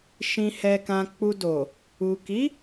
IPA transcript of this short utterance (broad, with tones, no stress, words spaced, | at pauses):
ʃĩ˨hɛ˨kã˨ k͡pu˨ do˨ | u˨ki˨˦